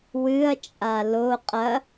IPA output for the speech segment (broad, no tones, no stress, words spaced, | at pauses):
wɨɐ̯t͡ʃʼa lo qʼɐ